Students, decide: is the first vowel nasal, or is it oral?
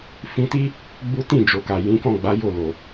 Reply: nasal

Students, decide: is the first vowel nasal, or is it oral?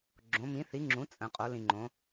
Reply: nasal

